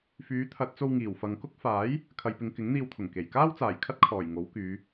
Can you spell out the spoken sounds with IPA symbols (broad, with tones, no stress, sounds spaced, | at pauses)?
f yː˨˥ t̪ʰ ɐ˨˥ t̚ t͡s o˧ w ŋ iː˨˩ w f ɐ˨ ŋ k ʊ˥ k̚ f aː˨˥ j | kʰ ɐ˨ j p ɪ˨ ŋ k ɪ˨˥ ŋ n̪ iː˧ w t̪ʰ ʊ˨˩ ŋ k e˨˩ j k aː˥ w t͡s aː˨˩ j kʰ ɐ˥ t̚ kʰ ɔː˨˩ j ŋ o˨˥ w k yː˨˧